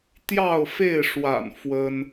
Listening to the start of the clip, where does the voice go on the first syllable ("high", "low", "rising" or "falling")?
falling